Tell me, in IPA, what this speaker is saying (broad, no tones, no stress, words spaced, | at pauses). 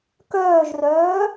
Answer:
kœːʒrœː